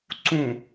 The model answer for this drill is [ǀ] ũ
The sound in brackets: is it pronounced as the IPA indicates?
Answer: yes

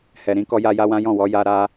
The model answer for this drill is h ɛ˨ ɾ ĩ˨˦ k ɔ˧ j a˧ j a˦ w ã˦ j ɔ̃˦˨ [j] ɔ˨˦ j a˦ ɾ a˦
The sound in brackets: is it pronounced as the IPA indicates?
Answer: no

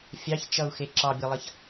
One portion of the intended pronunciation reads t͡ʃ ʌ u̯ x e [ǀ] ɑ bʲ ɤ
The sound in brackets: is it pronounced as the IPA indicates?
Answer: no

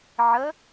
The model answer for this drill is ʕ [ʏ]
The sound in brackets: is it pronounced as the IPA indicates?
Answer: no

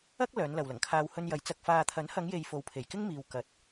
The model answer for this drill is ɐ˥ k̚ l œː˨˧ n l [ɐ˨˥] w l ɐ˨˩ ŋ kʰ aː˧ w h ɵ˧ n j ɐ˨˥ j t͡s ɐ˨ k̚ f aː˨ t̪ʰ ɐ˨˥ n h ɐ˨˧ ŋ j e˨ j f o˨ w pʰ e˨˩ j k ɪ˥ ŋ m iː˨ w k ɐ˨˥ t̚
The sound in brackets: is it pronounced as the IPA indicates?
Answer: no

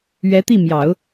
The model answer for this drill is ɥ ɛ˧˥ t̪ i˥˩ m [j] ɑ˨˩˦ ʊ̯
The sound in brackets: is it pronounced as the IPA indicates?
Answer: yes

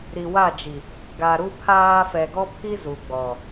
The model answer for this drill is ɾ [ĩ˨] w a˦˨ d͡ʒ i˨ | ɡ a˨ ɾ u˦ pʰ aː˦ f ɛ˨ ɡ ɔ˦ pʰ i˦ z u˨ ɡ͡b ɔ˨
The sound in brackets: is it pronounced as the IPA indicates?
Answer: no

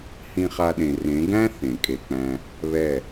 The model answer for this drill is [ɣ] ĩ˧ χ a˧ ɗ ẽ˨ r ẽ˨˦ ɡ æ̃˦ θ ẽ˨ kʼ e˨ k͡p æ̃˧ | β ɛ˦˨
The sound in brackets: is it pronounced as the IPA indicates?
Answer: no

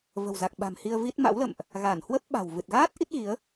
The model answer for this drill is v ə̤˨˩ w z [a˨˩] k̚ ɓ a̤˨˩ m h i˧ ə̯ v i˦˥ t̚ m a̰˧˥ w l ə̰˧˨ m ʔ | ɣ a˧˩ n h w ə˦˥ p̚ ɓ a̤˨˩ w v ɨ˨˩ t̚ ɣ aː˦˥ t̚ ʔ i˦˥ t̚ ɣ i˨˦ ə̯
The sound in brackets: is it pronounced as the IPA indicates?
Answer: yes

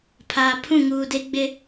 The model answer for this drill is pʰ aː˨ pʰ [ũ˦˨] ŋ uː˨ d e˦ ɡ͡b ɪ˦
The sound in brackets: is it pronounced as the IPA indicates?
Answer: yes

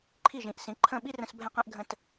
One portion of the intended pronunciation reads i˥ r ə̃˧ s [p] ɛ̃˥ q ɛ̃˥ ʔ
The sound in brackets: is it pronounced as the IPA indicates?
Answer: no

